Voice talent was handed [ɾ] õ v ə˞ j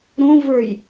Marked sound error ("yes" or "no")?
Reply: no